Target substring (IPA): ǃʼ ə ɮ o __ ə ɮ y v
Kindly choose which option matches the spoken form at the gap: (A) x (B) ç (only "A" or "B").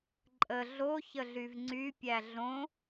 B